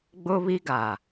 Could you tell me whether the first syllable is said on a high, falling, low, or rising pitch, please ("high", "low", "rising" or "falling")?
high